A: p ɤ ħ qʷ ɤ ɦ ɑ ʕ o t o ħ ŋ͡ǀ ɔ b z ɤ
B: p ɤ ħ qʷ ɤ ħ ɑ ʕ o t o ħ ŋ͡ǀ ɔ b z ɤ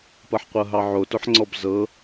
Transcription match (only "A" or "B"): A